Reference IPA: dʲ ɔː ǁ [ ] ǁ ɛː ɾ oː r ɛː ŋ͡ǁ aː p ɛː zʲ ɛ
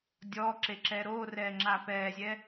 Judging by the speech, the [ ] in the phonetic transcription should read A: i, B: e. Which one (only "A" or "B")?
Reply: B